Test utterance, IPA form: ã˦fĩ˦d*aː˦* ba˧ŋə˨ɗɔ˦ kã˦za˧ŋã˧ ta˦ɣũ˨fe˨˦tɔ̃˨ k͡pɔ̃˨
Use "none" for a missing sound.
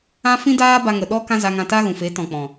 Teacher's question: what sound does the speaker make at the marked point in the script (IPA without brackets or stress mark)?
aː˦